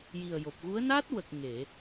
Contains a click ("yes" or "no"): no